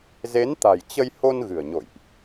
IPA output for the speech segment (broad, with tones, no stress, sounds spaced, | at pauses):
z e˨˦ n t̪ a̤˨˩ j t͡ɕ ə˧ j h o˧ n ɣ ɨ̤˨˩ ə̯ ɲ o̰˧˨ j ʔ